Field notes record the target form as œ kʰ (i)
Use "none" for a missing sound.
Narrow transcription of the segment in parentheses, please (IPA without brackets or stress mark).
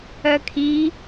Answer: i